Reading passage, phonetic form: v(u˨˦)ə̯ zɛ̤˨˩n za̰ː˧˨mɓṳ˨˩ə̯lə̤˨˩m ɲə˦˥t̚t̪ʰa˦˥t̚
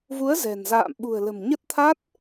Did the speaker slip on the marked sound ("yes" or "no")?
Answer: no